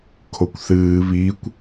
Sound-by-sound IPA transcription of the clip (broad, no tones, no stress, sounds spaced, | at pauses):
kʰ o kʷ θ ɨː β i kʷ